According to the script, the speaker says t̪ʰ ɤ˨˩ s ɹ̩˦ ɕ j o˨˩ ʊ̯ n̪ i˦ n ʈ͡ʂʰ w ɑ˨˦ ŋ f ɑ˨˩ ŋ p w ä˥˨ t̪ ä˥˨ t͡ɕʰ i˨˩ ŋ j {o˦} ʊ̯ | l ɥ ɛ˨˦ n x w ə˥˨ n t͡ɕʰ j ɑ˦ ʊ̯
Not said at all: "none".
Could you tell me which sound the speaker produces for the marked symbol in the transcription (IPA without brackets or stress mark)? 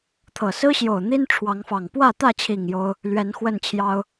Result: o˦